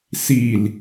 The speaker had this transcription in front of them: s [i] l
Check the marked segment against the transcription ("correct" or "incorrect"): correct